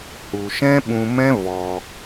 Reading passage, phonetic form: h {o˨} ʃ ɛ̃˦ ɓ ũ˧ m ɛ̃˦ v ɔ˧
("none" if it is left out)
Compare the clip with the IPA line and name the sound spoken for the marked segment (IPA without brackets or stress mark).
u˨